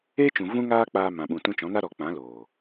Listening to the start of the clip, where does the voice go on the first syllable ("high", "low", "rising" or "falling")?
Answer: high